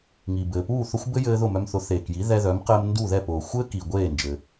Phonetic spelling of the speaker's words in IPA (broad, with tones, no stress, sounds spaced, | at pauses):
ŋ i˩ b ɘː˩ p uː˥˩ θ ʊ˥ xʷ b ɘ˥ j ɘː˧ ð ʊ˥˩ m œ˧ m θ ʊ˩˥ θ eː˩ k j i˩˥ ð ɛ˧ ð œ˩˥ m q ɘː˧ m n d u˥˩ ð ɛ˥˩ p ʊː˩ xʷ ɘː˥ k i˩ ɡʷ eː˥˩ n d͡ʒ ɘ˩